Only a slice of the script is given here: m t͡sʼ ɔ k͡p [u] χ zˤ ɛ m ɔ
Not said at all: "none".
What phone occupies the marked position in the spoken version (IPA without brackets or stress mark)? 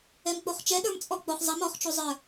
o